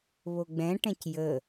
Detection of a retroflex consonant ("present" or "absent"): present